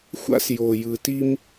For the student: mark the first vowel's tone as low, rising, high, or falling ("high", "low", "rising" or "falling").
high